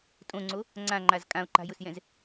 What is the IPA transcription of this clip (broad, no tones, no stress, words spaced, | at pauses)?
tʼõŋ͡ǀo | ŋ͡ǀãŋ͡ǃaz kʼão̯ǃa̤jʊsjɛ̃z